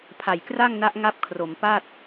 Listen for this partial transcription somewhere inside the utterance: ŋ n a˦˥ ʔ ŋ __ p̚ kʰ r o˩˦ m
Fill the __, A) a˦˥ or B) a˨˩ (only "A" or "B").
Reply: A